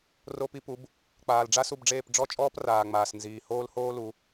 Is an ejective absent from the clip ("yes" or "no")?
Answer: no